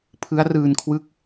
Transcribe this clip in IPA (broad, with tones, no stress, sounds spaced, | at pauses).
pʰ ɯ˦˥ a̯ r ɯː˧ n kʰ w ɯ˦˥ k̚